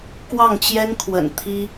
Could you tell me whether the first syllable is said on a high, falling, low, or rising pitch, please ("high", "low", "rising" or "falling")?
falling